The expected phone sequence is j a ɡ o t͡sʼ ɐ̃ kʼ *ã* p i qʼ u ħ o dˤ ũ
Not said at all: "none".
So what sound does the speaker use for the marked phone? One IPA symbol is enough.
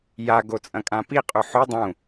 ã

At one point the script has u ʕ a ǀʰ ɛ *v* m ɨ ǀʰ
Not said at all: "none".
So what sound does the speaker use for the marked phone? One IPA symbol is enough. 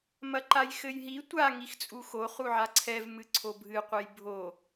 v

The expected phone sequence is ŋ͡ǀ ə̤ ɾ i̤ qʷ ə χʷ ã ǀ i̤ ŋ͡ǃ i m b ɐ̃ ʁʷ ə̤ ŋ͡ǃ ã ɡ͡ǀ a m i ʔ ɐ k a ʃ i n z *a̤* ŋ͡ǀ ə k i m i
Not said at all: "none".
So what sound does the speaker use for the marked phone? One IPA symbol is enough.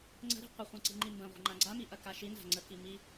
a̤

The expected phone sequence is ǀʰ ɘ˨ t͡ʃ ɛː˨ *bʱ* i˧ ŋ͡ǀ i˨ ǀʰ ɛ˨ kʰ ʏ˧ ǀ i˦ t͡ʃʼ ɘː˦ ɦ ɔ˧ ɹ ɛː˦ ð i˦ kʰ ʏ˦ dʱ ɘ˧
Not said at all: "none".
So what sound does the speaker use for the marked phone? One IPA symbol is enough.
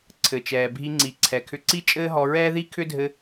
bʱ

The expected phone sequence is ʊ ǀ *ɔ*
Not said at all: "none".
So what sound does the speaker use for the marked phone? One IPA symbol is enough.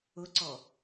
ɔ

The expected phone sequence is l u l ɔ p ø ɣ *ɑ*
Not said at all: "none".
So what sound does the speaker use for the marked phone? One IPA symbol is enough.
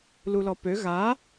a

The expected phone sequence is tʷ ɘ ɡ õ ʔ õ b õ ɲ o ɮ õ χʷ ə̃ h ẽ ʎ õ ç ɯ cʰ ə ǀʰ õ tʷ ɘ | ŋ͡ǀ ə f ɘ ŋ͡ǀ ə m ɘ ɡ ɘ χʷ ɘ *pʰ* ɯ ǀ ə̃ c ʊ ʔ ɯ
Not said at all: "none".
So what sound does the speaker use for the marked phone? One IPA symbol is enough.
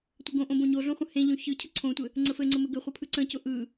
pʰ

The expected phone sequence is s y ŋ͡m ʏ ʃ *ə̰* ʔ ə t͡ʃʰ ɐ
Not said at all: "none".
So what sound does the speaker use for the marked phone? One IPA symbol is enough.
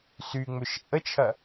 ə̰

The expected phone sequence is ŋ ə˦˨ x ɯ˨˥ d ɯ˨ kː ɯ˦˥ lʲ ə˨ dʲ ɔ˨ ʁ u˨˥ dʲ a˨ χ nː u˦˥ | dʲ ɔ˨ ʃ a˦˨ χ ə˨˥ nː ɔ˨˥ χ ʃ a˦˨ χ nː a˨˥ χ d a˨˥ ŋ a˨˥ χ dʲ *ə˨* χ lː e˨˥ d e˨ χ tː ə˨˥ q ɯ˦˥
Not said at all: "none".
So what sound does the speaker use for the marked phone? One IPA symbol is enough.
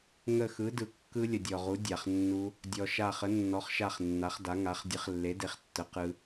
ə˨˥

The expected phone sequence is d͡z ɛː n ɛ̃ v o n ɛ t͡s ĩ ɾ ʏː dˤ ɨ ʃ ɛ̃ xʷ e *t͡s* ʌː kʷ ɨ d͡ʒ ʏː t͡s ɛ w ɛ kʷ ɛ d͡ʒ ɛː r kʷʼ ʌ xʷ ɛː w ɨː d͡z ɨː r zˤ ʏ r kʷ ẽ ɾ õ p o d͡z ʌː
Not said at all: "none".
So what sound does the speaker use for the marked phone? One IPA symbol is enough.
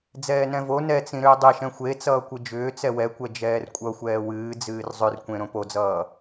t͡s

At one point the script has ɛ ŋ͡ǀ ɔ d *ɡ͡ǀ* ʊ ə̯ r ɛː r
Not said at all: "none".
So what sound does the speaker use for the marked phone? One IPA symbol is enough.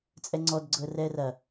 ɡ͡ǀ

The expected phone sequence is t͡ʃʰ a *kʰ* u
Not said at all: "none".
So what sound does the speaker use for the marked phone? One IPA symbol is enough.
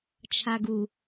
ɡ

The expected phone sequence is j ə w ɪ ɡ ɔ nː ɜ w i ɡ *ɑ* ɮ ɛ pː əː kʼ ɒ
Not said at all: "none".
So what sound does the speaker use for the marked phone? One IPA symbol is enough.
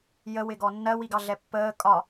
ɑ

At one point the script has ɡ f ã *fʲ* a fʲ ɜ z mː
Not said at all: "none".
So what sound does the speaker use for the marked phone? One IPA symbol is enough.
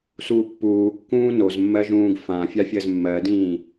fʲ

